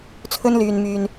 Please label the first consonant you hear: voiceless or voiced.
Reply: voiceless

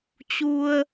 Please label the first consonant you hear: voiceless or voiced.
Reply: voiceless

